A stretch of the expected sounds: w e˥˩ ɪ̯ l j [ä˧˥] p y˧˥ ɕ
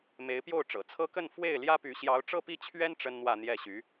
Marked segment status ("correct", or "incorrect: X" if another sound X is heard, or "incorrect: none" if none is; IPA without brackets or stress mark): incorrect: ä˥